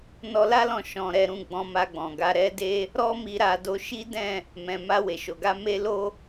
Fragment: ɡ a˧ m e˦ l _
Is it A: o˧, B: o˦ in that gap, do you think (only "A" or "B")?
B